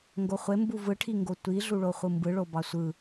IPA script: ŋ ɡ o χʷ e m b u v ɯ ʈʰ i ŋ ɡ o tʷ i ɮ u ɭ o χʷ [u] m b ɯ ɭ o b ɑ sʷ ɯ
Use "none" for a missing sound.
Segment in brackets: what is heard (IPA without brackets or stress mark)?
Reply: ɯ